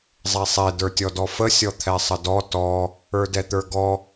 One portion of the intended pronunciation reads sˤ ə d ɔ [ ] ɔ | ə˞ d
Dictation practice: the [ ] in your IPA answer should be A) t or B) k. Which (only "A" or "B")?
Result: A